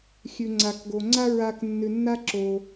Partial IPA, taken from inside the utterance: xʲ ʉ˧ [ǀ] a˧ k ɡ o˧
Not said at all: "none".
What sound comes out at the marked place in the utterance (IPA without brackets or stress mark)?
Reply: ŋ͡ǀ